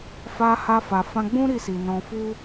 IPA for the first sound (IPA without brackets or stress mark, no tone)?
f